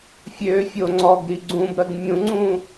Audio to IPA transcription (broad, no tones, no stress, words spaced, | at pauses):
fʲø fʲoŋ͡ǀɔɡɾi ɡ͡ǀũbɾɜɡ mʲũŋ͡ǀũ